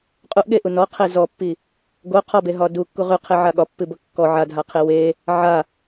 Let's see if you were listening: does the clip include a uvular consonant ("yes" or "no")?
yes